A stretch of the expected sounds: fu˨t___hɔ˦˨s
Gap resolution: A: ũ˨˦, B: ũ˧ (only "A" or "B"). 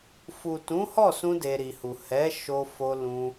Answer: A